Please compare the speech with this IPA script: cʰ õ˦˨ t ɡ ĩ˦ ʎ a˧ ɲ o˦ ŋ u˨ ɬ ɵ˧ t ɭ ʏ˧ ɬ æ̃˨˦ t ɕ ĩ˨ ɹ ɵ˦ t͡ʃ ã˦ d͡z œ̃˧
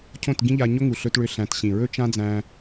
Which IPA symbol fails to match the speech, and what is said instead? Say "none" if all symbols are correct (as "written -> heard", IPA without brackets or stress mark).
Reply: œ̃˧ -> æ̃˧